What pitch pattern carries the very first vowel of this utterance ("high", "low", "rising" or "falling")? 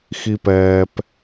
low